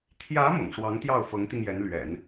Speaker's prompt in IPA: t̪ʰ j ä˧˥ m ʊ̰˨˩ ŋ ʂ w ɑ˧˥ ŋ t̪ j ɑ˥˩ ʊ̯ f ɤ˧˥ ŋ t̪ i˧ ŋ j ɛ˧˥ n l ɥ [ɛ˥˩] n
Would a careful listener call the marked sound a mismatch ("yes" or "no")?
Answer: yes